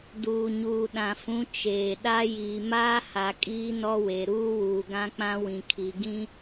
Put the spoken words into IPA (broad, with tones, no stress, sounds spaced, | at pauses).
d uː˨ ɲ uː˨ ɗ ã˨ f ũ˨˦ t͡ʃ eː˨ ɗ a˦ j iː˨ m aː˦ h a˨ kʼ iː˦ n ɔ˦ w e˨ ɾ uː˦ w uː˨ ɡ ã˦ k͡p ã˦ w ĩ˨ kʰ i˨ ɡ ĩ˦